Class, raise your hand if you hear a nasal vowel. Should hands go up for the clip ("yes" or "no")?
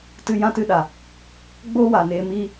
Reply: yes